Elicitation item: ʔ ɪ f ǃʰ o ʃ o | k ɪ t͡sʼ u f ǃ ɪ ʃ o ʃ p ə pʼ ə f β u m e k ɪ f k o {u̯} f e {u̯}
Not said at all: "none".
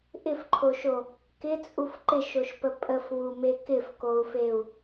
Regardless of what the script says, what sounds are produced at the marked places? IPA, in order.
u̯, u̯

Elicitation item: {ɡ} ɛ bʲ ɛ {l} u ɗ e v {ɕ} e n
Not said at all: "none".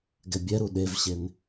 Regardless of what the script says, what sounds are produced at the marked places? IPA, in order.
ɡ, ɾ, ɕ

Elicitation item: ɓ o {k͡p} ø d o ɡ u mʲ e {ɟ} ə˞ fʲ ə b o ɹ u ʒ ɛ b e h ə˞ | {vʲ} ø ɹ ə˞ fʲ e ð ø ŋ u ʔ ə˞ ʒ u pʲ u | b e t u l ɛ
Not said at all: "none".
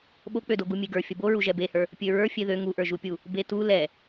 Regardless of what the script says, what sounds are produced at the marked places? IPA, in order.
k͡p, ɡ, pʲ

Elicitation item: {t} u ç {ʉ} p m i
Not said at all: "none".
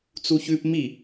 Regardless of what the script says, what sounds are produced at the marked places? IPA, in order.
t͡s, ʉ

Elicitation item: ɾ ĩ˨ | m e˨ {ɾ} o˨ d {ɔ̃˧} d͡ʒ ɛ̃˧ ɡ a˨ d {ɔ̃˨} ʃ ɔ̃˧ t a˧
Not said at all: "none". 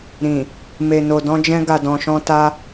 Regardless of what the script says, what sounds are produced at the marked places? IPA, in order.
n, ɔ̃˧, ɔ̃˨

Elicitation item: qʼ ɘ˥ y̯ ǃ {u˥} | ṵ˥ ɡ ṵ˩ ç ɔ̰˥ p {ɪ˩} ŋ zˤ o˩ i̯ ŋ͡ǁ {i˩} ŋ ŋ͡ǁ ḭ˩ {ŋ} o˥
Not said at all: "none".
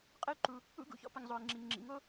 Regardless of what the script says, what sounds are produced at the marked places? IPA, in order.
u˩, ɨ˩, i˩, ŋ

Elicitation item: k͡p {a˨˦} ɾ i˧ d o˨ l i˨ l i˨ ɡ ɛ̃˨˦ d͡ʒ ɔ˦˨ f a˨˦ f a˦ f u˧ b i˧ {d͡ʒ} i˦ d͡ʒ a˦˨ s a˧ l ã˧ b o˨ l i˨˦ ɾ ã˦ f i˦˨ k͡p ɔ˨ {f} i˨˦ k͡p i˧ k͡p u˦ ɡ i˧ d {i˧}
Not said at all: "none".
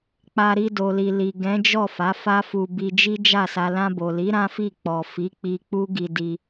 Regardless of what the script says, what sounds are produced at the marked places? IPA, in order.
a˧, d͡ʒ, f, i˧

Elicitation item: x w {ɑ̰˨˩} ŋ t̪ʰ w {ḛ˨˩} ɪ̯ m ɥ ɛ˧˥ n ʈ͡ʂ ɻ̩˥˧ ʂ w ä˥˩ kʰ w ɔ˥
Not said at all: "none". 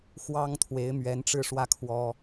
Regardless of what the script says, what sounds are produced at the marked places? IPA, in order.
ɑ˥, e˧˥

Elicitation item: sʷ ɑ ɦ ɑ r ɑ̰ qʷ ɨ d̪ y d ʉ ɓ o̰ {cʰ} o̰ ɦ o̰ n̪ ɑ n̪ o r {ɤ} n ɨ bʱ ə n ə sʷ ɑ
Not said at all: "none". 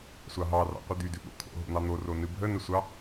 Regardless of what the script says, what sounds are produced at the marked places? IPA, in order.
t̪ʰ, o

